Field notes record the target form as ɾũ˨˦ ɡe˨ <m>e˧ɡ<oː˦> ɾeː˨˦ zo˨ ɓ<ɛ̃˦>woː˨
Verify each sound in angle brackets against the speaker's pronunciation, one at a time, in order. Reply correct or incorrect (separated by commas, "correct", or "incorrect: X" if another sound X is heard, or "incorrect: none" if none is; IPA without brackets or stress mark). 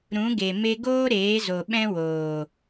correct, correct, correct